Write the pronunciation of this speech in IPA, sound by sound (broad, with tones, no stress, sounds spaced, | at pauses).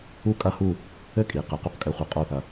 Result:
u˥ kʼ ɐ˥˧ h u˥˧ | ɘ˥ kʼ i˩˧ q ɨ˩˧ q u˧ q kʼ ɘ˧ χʷ ɨ˧˩ qʼ o˥˧ θ ɐ˧